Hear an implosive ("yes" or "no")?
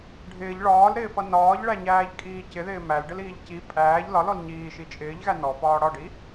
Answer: no